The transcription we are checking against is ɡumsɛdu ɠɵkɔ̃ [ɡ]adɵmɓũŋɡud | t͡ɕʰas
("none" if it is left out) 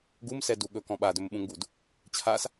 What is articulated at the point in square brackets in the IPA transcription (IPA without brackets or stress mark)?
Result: ɓ